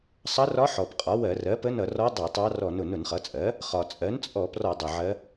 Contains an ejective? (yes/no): yes